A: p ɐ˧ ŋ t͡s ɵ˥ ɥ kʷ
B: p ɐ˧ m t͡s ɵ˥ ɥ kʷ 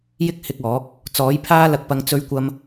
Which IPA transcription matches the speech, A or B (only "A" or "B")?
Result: A